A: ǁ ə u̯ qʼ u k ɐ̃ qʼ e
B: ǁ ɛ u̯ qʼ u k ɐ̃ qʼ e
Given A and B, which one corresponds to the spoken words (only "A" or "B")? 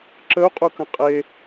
A